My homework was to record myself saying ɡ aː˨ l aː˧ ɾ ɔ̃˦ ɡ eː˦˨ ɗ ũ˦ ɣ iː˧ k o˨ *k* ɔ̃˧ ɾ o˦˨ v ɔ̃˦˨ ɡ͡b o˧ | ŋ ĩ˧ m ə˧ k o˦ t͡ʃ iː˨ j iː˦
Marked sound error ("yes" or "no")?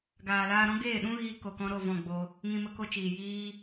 no